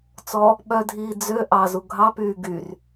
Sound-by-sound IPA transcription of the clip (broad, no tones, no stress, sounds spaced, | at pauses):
t͡s ɔ | ɓ œ dʱ iː d͡z ø ʔ ɑ z u ɡʱ ɑ p yː ɡ y r